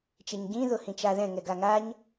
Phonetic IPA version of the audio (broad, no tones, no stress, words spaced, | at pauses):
t͡ʃeɲɟĩ ðʊhĩt͡ʃaðɛ̃ ŋɛɡaŋaɲ